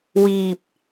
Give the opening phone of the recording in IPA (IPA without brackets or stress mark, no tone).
w